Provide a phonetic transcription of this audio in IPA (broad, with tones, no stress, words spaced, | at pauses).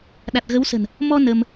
ɗa˨˩t̚ɣə˨˦wsə̤˨˩n | mɔ˧ nə˧m